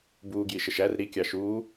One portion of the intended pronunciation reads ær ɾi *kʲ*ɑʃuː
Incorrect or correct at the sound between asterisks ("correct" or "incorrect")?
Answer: correct